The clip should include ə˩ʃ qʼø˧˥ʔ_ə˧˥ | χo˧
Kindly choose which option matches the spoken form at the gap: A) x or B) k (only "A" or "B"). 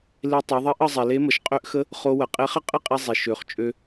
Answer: A